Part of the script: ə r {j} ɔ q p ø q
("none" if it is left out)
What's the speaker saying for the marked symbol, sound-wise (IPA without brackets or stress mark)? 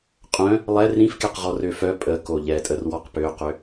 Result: w